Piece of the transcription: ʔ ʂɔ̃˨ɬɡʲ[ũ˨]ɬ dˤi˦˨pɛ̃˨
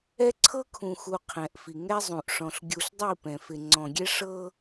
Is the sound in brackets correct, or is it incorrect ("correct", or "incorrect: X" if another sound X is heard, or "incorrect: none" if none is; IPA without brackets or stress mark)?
incorrect: u˨